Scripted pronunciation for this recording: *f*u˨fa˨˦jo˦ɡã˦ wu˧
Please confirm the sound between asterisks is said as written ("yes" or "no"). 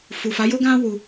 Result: yes